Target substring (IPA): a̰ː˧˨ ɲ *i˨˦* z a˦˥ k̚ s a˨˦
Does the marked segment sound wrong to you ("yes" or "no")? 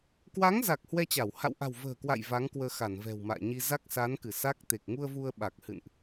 yes